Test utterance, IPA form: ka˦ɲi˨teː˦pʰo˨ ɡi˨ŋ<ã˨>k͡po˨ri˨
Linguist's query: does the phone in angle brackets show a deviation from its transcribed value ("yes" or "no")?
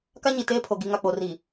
yes